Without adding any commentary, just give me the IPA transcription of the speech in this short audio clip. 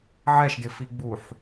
ʕ ɛ ʃ d ɪ f i ɡ͡b u ħ

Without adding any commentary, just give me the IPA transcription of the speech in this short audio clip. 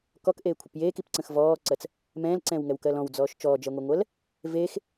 k ɔ k ʔ eː kʷʰ ə p j eː k i p ǀ ə̃ x v ɔː ǀ ɜ t͡s | m ɛ̃ː l ǀ ɛ̃ː w ŋ ɛ w k ɜ l ɔ̃ w d͡z ɔː ʃ t͡ʃ ɔː d͡ʒ ɜ ŋʷ ɛ ŋʷ ɜ l | v eː x

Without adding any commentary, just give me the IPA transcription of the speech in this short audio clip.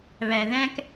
β æ˨ ð æ̃˦ k

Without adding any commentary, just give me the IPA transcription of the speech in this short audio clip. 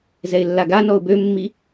z ɛ ɪ̯ lː a ɡ a n ɔ ʊ̯ b ø mː i

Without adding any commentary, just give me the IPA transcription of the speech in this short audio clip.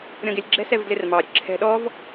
ɾʲ ɔ̃ ɡ ɪ lʲ ɡ͡ǁ ɛ̤ s ɛ v d l ɪ r m ɑ ɾʲ ə̤ ǁʰ ɛ̤ ɗ ɔ v

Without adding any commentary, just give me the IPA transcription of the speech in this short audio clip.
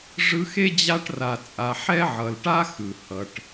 ʐ ɯ˦ x e˥ d͡ʑ a˦ ʈ r a˨ t͡sʼ a˨ ħ ɛ˥ ʕ ʌ˨ l ʈ a˥ x ɯ˩ h ʌ˨ ʈ

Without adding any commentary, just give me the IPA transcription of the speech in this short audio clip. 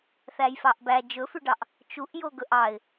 θ æ j f ɑ ʔ b æ d͡ʒ ɵ f ʉ ɖ ɑ ʔ | t͡ʃ u ʔ j o ɡ ɵ ʔ ɑ ɪ̯

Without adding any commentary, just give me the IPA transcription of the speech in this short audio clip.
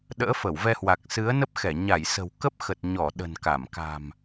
ɗ ə̰ː˧˥ f ə˧˩ w v ɛ˧ h w a˨˩ k̚ s ɨ˨˦ ə̯ n ə˦˥ p̚ x ɛ˧˩ ɲ a˧˩ j s ə̤˨˩ w k ə˦˥ p̚ x ə˨˩ t̚ ɲ ɔ˧˩ ɗ ə̤˨˩ n k a˧˩ m k a̤˨˩ m

